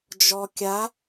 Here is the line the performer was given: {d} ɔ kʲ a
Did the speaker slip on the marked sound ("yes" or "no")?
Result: yes